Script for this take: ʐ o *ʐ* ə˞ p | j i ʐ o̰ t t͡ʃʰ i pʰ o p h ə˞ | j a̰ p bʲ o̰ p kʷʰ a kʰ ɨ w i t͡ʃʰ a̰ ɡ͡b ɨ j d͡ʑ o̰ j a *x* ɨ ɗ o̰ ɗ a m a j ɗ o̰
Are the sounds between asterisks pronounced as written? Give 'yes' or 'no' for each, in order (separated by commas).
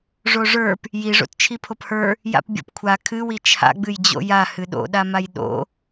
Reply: yes, no